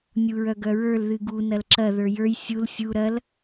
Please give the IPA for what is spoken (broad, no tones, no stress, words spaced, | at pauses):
nʲuɹœɡœɹə˞l ðɨɡu nɐlǁɐ ðə˞jə˞j sʲul sʲu ɾɐl